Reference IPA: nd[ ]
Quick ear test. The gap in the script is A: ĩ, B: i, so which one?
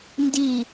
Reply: B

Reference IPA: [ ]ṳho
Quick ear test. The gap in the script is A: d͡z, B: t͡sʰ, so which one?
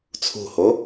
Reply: B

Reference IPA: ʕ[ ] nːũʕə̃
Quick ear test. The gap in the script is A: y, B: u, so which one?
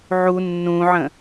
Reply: B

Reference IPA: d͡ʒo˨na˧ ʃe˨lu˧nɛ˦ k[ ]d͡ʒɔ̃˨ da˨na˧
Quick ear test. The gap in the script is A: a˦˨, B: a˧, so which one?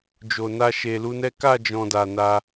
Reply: A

